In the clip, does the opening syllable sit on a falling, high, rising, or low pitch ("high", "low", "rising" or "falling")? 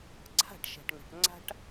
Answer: falling